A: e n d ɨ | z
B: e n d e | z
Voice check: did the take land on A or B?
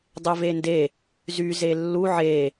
B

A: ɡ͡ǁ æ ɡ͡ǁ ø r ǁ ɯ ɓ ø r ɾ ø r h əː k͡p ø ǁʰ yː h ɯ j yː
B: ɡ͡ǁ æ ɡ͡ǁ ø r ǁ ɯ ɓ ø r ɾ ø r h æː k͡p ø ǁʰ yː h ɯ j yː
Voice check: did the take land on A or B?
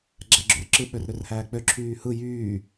B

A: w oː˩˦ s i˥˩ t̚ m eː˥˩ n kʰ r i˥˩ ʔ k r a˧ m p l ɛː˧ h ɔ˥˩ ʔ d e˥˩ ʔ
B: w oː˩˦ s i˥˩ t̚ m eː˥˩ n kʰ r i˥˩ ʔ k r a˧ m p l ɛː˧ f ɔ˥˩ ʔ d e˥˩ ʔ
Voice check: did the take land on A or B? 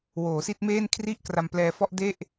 B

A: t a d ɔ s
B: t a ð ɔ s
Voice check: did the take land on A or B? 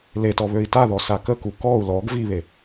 B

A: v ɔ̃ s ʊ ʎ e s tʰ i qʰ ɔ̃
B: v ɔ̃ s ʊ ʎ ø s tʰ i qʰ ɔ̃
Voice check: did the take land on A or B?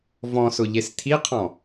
A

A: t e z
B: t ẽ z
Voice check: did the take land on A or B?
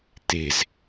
A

